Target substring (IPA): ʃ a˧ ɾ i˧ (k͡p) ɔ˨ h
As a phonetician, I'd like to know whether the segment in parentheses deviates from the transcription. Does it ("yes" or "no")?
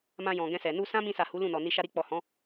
no